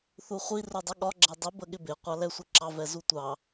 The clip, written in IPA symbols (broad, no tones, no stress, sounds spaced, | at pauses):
θ u χʷ i r u dˤ ə ɠ ɒ ɡ͡ǁ ɛ dˤ i b ə ɠ ɪ b ɪ qʷ ɑ l ɛ sʷ ɪ ǁ ɑ v ɛ z u tʷ ɑ